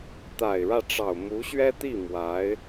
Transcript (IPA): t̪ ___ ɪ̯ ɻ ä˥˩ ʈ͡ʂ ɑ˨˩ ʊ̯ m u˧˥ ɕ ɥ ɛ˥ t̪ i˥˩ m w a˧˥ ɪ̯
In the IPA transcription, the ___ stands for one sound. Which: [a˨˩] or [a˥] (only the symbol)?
a˨˩